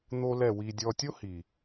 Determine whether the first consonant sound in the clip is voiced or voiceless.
voiced